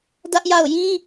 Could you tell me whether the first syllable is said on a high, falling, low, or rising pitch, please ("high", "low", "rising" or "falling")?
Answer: high